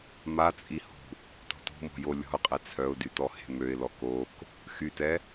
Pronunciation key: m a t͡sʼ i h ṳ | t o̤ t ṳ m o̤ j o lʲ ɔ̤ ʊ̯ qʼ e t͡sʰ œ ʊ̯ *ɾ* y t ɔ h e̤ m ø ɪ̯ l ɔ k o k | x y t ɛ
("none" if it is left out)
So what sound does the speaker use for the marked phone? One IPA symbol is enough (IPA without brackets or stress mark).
d